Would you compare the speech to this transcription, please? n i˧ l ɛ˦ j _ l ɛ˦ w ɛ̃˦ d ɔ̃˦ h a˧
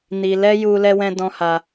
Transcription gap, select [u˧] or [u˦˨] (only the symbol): u˧